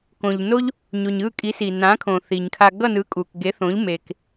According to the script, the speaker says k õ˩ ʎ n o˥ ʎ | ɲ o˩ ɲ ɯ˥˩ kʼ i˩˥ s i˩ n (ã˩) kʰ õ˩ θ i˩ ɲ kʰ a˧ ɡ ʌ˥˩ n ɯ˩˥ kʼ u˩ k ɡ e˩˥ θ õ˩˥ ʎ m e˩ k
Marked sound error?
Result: yes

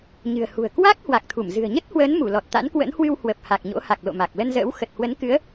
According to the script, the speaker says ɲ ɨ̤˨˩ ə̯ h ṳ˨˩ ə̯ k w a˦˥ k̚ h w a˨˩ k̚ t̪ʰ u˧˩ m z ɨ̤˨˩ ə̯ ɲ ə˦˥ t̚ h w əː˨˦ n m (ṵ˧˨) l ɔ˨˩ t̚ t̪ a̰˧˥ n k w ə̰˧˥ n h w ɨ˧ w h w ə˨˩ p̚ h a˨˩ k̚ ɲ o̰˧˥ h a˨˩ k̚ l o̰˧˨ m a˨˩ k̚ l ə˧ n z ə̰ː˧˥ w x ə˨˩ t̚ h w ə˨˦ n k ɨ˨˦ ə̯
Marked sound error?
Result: yes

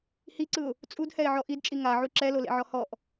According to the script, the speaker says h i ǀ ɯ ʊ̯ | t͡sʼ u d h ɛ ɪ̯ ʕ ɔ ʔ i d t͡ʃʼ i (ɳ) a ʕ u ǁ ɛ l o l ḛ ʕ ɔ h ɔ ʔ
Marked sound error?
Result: yes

